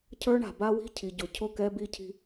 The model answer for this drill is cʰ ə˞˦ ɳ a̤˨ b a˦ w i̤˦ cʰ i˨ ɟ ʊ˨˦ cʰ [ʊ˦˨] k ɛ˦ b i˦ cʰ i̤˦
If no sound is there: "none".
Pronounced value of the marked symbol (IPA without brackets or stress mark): ʊ˦˨